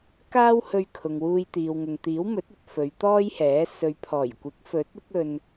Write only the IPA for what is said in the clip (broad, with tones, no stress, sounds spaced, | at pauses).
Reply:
k aː˥ w h ɵ˧ ɥ kʰ ʊ˨ ŋ w uː˧ j t̪ iː˨ w ŋ ʊ˨ ŋ t̪ iː˨˥ w m ɵ˨˥ t̚ ɵ˧ t̚ f ɵ˨˧ ɥ t̪ ɔː˥ j h ɛː˨˥ s ɵ˨ ɥ pʰ ɔː˨˩ j kʷ ɪ˨˥ k̚ f ɵ˨˥ t̚ ɪ˥ k̚ ɵ˧ n